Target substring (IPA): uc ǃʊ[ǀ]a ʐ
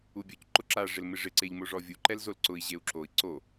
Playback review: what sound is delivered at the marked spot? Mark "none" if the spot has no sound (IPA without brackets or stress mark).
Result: ǁ